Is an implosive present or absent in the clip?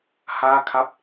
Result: absent